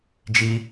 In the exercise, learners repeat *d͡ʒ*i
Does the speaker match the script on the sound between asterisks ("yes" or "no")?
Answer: yes